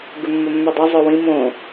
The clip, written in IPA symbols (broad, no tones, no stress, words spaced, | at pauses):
ɡʉmːɵmːʉdˤo zˤɵwĩ mõ